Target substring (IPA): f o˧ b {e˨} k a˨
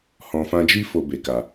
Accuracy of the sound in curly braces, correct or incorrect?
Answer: correct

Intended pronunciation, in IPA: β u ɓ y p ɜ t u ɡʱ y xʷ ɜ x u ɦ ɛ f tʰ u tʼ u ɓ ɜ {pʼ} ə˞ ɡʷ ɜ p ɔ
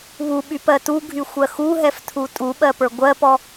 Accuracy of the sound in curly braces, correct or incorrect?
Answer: incorrect: p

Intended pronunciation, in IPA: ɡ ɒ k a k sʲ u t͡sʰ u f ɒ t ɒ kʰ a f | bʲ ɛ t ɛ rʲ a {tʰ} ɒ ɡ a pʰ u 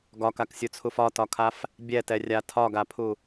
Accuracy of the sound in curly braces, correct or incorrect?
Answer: correct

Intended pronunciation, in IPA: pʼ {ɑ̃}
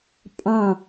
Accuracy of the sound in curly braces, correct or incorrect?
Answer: correct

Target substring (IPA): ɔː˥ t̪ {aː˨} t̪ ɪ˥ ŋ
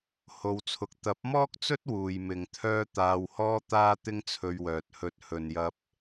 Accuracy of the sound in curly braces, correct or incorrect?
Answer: incorrect: aː˥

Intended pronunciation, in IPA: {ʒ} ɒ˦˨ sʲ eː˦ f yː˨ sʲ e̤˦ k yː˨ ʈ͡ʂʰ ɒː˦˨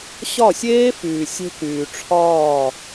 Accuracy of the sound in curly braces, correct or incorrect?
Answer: incorrect: ɕ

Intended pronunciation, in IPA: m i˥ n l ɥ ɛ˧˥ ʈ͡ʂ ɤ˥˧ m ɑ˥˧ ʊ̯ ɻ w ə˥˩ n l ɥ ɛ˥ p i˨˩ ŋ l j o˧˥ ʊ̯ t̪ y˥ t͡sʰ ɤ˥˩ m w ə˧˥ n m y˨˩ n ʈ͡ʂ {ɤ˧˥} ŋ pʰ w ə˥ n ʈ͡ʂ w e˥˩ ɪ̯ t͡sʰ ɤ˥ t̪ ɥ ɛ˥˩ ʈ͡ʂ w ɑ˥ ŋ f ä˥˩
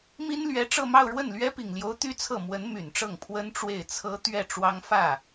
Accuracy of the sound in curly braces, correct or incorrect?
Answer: incorrect: ɤ˥˩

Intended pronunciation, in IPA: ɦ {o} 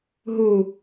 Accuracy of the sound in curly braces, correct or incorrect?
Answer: incorrect: u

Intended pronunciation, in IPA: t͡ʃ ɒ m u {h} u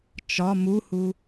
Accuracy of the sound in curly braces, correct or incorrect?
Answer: correct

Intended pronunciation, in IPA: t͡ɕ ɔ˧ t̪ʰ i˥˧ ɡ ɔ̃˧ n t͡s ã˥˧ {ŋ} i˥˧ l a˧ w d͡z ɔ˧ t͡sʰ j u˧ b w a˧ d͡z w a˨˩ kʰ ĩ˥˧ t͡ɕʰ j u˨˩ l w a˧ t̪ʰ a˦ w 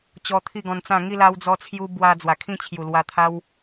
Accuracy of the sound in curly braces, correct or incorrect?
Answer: correct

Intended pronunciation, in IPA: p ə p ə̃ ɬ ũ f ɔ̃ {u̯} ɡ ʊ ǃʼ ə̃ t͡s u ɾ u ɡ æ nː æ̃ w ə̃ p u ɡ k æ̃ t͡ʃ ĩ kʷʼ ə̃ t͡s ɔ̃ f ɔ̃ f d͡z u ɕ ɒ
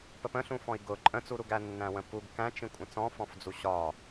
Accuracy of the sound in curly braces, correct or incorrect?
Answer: incorrect: i̯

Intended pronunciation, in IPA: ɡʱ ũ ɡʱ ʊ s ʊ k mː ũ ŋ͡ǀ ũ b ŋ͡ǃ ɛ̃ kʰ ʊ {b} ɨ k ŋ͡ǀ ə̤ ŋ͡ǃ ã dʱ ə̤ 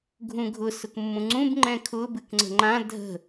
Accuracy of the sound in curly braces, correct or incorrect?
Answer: correct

